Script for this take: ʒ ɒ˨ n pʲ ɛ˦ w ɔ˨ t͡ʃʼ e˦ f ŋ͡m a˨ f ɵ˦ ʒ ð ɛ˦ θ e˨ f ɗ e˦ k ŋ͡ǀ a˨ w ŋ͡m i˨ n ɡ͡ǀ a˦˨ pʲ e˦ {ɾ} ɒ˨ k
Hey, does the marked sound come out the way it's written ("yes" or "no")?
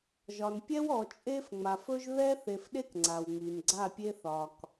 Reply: no